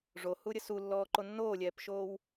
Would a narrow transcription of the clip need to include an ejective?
no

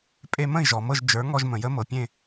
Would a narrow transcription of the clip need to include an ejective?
yes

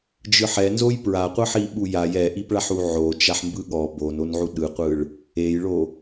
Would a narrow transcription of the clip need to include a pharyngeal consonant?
yes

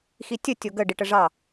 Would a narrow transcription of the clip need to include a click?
no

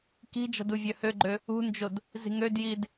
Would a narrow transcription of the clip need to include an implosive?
no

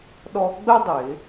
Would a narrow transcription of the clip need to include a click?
no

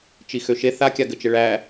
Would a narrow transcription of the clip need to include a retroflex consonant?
yes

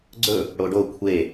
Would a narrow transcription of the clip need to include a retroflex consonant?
yes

